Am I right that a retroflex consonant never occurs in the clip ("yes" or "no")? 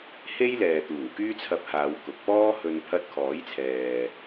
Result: yes